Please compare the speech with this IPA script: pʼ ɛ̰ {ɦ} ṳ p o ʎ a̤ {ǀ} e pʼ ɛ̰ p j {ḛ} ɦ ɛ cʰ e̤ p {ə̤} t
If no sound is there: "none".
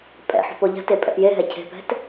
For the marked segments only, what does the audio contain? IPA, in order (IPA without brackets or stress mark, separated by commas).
ħ, t, e, ɛ̤